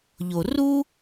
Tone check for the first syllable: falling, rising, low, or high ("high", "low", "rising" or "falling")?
low